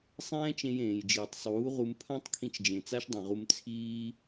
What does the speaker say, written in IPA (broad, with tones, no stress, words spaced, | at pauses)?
sˤɛ̃ː˦t͡ʃẽ˧j ẽː˨jd͡ʒiː˨tˤsˤuː˨˦ʁu˧m pʰã˦tˤkʰĩ˧t͡ʃd͡ʒẽ˨ t͡sa˦ʃdˤĩ˨ʁu˧m t͡sʰiː˦